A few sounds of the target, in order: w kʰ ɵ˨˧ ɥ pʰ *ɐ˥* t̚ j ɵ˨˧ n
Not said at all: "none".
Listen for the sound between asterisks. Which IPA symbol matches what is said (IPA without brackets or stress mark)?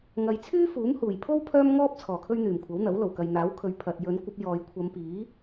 ɐ˨